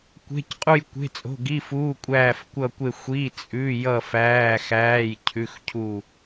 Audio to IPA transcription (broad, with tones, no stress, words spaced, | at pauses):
kʷe̤˩˧˩cqʼu˧˩jkʷe̤˩˧˩ t͡sʼo̤˩˧˩ɡi˩˧˩fuː˩˧˩ kʷʼæː˧˩fkʷʌː˧˩kʷe˧˩ xʷi˩˧˩ t͡sʼʉ˩˧˩ jʌ˧˩fæː˩˧˩xæː˩˧˩j cʰʉ˩˧˩xcʰu˧˩